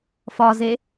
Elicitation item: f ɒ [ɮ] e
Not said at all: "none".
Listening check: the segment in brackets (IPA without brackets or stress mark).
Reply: z